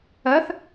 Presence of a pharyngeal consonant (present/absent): absent